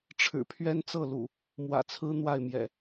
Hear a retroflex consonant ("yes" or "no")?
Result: yes